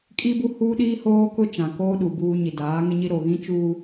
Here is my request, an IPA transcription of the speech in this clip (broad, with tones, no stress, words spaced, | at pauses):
kʼi˦bu˦ huː˦ɗiː˦hoː˦kʊ˦ t͡ʃã˨koː˦ɗu˨ buː˦ɲi˨ daː˨˦ŋɪ˦ɲi˦ ɾo˨ɣĩ˦t͡ʃuː˦